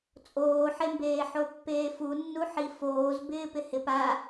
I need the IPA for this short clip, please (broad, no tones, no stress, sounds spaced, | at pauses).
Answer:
t͡sʼ oː ħ e m b eː ħ o pː eː f u nː u ħ i f oː z b ɪː p ɪ h ɪ p a